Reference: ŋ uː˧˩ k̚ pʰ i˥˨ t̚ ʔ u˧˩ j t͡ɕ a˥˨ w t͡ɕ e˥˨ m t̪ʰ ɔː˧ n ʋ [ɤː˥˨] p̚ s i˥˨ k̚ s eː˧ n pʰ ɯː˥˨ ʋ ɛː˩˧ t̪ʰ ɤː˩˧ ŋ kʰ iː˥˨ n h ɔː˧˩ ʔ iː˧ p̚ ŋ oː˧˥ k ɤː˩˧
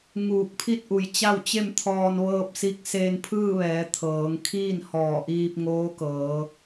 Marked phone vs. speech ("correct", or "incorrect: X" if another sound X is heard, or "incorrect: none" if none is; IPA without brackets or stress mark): correct